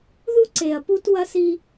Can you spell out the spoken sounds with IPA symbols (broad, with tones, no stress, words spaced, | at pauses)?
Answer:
ðu˦ǀe˨ɐ̯pu˦t wɐ˦si˦